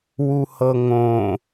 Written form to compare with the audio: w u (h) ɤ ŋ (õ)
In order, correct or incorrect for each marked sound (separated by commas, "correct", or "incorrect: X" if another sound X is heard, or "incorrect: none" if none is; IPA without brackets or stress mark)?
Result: correct, correct